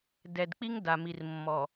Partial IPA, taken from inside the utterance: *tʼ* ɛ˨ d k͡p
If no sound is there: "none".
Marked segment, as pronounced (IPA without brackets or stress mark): d